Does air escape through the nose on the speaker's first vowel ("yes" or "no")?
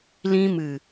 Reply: yes